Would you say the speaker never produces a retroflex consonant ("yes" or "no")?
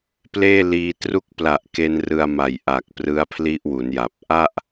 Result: yes